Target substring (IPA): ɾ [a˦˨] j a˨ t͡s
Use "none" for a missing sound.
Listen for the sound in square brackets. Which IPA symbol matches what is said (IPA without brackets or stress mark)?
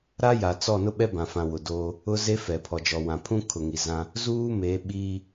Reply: a˦